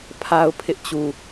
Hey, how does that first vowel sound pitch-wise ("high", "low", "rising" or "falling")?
high